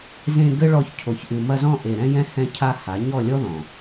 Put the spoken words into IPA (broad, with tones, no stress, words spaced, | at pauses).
zẽ˧ ɡɘ˦ɭɔ˧ç cʰo˨çʔɨ˨mɐ˧ zɔ̃˧ ʔe˨ɾɛ̃˧ jɛ̃˧ hɛ̃˧cʰa˧ ha˨˦ ɲɔ˦˨lʲɔ˦ðɔ̃˨